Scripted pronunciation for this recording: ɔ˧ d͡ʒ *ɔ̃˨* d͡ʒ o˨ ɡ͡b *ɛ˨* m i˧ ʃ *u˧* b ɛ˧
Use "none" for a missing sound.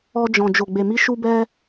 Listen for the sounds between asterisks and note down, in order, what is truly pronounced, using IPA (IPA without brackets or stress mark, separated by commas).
ɔ̃˨, e˨, u˧